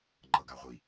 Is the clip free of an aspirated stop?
yes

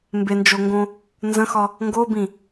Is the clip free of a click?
yes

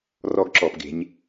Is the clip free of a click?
no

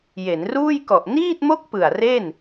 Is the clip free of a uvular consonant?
yes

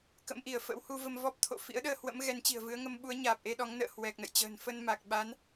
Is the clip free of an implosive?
no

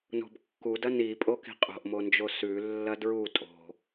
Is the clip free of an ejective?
no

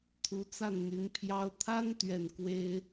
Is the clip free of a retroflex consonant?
yes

